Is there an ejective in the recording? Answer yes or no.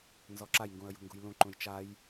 no